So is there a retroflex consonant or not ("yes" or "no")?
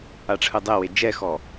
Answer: yes